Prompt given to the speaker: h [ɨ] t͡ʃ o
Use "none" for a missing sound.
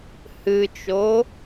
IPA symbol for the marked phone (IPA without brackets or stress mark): ɨ